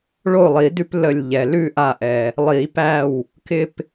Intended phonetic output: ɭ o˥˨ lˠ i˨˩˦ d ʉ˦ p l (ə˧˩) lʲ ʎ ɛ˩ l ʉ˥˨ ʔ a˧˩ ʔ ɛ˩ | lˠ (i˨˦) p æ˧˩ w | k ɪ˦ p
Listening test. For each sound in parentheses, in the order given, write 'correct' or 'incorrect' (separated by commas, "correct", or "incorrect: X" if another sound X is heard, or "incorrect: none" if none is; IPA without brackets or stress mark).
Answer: correct, incorrect: i˨˩˦